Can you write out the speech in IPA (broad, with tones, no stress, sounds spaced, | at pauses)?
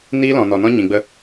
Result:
n iː˦ l ɔ̃˨ n ɔ˨ n ɔ̃˦ ɲ ĩ˨ ɡ͡b ə˧